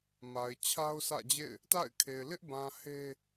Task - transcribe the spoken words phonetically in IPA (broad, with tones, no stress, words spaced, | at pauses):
ma˨ɪ̯t͡ɕʰa˦ʊ̯sä̰˦˨d͡ʑḛ˦˨ɪ̯ | ta̰˦˨ɪ̯kʰe˨ɪ̯ lɪ˦ʔbã˨ he˦